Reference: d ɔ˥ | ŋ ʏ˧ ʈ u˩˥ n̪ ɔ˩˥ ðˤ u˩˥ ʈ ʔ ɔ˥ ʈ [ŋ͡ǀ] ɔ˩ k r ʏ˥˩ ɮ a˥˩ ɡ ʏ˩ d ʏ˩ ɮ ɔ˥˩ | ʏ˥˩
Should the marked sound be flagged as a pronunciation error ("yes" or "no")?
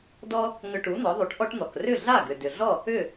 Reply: yes